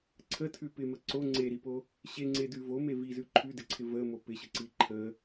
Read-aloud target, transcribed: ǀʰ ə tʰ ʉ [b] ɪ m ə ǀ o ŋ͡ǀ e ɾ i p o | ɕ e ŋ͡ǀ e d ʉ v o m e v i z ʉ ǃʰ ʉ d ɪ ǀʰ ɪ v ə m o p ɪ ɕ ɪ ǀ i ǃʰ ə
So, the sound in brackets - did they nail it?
no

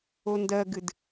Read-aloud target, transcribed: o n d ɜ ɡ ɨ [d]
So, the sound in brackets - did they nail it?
yes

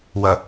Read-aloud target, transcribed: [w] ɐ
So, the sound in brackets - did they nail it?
yes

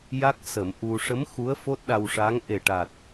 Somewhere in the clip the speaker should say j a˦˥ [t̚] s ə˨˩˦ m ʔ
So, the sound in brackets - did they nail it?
no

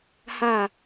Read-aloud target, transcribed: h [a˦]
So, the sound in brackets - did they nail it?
no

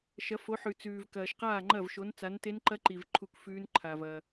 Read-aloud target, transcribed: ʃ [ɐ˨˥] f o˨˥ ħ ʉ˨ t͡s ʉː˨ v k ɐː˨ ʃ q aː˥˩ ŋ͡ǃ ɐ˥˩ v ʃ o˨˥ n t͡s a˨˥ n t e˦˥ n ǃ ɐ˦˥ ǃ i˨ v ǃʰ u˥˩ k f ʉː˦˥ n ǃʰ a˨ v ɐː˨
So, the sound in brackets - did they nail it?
yes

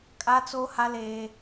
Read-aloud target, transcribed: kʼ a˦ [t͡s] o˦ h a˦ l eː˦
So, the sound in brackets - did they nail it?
yes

